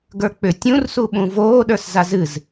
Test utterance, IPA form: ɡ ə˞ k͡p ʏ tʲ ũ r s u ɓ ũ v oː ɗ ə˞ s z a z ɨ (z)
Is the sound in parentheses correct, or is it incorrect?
correct